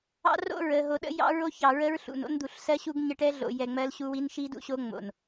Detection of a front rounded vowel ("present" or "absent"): absent